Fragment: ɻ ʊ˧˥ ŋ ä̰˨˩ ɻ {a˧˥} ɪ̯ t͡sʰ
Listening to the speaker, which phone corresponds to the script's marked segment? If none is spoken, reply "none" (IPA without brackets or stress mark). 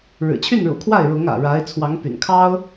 a˧˥